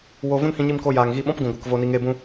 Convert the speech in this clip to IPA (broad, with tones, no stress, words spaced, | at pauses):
wo˧ vũ˦nhĩ˧ɲi˧mko˧ jaː˨ŋɣi˧ɓɔ̃˦pɡũ˨ ɡʷɨ˨kvo˧ni˧ ŋe˧bũ˧